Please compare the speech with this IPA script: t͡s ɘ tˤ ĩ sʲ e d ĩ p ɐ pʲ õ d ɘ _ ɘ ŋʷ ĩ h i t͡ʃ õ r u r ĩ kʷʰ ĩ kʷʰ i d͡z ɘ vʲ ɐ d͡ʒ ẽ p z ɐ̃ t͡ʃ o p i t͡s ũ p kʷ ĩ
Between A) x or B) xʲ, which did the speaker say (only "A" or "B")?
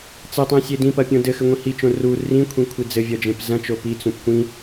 A